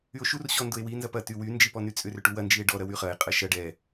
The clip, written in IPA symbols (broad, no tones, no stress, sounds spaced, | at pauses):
y o̯ ʃ u r ɕ ɔ n d ʊ e̯ w i n z ɐ p ɐ t y w y n d͡ʒ i p ɔ n y t͡sʼ ʏ r ʏ ʈ u w ɐ n d͡ʒ i e̯ ɖ ɔ ɾ ɐ w y χ ɐ e̯ qʼ ɐ ʃ ɐ ɖ ɛ